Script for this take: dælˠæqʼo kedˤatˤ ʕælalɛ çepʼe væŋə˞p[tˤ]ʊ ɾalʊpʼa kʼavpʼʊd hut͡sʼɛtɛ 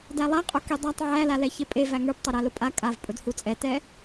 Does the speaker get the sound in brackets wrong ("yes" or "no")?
no